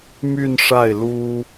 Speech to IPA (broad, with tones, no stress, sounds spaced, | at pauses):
m y˥˧ n ʂ a˥˩ ɪ̯ l u˥